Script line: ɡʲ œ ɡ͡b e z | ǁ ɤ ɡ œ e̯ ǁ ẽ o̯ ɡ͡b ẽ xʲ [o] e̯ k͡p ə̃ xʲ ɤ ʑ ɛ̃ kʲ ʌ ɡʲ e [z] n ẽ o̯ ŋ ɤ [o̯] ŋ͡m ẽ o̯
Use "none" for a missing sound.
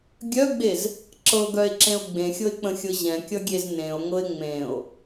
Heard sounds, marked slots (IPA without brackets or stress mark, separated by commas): ɤ, z, e̯